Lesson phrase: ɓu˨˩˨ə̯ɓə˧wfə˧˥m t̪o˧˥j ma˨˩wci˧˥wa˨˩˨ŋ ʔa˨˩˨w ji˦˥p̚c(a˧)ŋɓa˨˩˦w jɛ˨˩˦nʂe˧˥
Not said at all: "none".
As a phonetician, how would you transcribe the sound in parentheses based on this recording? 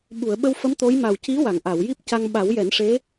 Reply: a˧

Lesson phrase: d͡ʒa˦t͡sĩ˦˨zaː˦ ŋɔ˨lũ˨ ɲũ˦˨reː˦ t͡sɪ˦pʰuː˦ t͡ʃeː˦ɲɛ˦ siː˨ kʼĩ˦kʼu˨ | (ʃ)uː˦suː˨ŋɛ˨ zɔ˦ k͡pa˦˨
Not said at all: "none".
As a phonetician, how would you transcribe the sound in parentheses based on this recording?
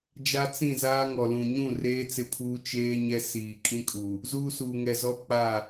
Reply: z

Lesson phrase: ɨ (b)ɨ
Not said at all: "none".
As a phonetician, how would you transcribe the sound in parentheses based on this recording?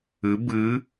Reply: b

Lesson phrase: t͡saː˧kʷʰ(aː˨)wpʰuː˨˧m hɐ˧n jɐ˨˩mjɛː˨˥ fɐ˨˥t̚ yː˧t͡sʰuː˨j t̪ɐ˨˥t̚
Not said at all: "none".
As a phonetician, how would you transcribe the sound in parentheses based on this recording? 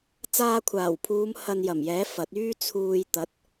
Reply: aː˨˩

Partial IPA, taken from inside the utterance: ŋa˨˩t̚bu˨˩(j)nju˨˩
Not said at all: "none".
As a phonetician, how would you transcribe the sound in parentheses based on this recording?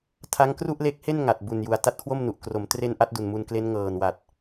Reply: none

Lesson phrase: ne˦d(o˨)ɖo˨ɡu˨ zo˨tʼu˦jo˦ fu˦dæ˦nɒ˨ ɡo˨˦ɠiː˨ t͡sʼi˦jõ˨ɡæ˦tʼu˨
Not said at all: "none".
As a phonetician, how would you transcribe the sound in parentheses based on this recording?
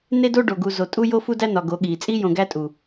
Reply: o˦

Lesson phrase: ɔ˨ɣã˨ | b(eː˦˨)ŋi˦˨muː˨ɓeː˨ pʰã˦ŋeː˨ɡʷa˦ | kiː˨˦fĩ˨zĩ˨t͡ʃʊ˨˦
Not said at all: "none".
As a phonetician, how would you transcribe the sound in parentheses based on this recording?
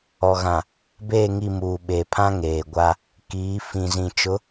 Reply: eː˦˨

